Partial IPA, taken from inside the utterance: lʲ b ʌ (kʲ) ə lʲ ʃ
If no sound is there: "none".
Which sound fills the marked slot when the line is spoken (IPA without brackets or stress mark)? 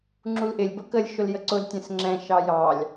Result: k